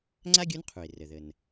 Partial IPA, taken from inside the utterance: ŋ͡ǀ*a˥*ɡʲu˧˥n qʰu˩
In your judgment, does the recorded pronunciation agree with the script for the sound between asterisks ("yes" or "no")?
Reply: yes